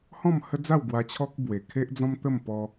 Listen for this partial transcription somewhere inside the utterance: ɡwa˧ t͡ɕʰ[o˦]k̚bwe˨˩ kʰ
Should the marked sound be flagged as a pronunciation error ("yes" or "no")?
yes